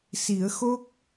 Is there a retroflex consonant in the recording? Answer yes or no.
no